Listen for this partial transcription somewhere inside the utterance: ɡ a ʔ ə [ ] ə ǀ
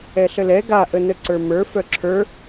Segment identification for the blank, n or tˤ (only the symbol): n